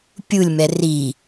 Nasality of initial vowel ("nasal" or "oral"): oral